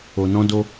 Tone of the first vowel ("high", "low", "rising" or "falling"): low